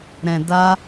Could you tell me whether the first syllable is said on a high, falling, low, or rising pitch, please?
low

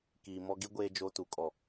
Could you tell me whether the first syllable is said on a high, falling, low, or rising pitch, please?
low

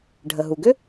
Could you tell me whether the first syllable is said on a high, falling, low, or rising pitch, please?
low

